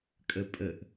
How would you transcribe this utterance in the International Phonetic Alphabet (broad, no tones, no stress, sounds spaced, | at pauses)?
kʼ ə pʼ ə ʔ